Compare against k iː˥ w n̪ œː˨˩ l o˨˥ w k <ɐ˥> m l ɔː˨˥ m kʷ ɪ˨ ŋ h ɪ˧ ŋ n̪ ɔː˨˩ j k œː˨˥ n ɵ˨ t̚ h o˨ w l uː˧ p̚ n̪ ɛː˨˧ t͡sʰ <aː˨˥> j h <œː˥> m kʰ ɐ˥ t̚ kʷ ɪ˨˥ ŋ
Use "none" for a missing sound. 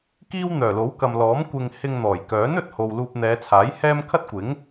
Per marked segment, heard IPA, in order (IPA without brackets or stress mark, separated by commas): ɐ˨, aː˨˥, ɛː˥